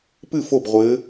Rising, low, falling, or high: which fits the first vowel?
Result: falling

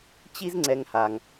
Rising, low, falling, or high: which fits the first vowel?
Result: high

